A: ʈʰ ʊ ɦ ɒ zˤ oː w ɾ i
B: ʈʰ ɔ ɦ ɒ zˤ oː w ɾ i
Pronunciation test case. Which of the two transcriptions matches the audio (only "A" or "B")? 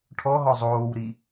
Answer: B